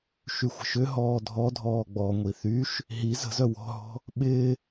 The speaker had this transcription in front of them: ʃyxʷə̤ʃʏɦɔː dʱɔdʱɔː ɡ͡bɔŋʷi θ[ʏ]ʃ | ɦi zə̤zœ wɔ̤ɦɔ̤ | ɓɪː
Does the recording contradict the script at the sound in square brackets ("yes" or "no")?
yes